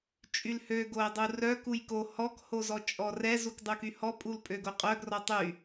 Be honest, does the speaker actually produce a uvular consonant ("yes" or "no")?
yes